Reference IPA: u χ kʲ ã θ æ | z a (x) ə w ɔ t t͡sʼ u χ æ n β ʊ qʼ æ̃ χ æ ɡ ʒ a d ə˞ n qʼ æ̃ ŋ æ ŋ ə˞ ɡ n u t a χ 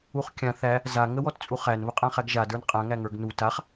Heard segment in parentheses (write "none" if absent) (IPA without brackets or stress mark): ŋ